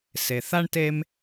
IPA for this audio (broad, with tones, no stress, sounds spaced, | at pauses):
s e˩ θ a˧ ɳ t e˧ m